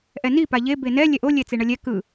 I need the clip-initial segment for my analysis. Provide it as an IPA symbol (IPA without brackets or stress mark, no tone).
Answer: ʔ